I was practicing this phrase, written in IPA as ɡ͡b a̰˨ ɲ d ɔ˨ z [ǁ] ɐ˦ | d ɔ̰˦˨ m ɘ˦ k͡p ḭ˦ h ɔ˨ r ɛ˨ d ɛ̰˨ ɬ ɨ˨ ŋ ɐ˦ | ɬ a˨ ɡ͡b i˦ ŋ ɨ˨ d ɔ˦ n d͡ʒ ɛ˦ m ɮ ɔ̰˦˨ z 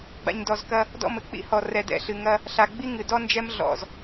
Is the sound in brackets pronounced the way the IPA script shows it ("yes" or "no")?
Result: no